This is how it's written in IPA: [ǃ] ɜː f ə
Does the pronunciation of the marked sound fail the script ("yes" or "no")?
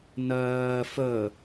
yes